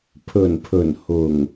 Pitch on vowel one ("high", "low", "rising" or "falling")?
low